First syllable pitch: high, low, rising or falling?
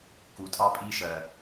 low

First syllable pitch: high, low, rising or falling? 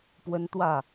high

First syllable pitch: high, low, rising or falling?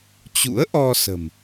rising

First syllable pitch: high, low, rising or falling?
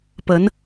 rising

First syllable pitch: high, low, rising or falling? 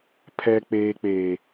low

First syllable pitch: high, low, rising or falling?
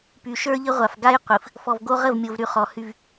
low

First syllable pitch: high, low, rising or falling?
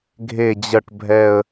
low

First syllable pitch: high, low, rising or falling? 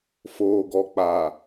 low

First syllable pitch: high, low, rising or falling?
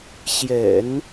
low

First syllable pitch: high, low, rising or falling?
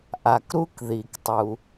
low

